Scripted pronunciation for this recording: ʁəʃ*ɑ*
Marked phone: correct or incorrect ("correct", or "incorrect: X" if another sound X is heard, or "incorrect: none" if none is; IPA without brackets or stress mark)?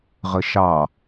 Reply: correct